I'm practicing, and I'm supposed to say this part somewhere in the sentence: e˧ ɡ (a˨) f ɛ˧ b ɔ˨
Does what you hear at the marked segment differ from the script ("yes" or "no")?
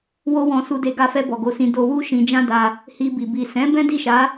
yes